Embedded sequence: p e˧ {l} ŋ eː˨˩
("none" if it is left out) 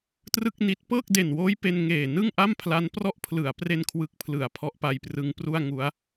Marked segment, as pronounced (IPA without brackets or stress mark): n